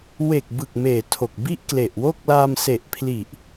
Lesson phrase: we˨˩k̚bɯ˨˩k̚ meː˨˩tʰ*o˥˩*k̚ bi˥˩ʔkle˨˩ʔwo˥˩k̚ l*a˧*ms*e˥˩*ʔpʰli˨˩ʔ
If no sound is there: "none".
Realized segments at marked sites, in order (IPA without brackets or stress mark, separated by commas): o˨˩, a˧, e˨˩